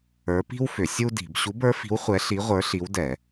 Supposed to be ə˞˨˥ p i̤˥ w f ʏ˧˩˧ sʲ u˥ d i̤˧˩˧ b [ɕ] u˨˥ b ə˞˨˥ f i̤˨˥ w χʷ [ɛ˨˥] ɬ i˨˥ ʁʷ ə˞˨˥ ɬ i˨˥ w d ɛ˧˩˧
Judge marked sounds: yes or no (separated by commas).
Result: yes, yes